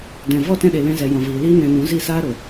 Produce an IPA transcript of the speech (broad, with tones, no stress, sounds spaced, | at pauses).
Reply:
d ɛ̃˨ v ɔ˦˨ t ɛ̃˧ ɗ e˨ l ɛ̃˧ z ɛ˨ j ɔ̃˨ v iː˨ l iː˦ n ɛ̃˧ n ũ˨˦ z i˦˨ s aː˦ ɾ o˨